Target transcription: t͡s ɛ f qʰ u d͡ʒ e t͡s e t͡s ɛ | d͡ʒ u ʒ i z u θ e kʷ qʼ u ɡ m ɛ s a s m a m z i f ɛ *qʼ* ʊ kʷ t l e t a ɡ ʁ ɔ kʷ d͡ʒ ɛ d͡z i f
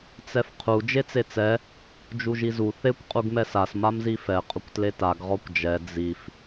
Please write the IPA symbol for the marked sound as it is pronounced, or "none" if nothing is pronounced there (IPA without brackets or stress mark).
qʼ